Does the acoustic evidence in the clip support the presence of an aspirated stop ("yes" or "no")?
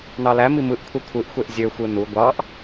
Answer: yes